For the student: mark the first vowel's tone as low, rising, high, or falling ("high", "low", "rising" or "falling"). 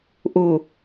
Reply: low